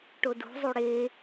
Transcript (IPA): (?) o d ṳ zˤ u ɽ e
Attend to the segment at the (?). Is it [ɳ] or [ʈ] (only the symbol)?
ʈ